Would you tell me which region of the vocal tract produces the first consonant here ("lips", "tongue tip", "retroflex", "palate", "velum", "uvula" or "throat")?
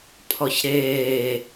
lips